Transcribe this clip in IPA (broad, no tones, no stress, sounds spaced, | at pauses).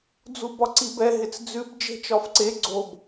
d͡z u b ɒ ǀ i b ɛ ɦ ɪ t͡s d͡z ʉ b d͡ʒ e̤ t͡ʃ ɒ f ǀ e ɡ͡ǀ o b